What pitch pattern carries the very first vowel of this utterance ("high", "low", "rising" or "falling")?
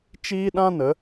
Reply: high